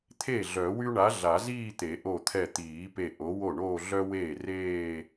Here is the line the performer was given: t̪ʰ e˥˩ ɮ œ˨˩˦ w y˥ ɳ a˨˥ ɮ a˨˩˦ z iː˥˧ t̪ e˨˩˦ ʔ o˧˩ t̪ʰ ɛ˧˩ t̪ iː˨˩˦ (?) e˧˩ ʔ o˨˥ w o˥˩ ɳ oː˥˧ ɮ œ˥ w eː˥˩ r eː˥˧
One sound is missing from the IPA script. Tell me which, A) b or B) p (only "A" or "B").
B